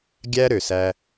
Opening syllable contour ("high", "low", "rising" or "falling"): high